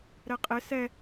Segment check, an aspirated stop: absent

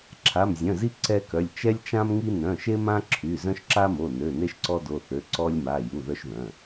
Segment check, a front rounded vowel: present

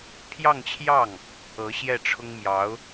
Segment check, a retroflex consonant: present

